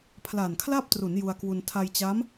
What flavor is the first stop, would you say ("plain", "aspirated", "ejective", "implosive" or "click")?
aspirated